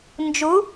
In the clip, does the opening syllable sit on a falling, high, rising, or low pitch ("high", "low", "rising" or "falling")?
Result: rising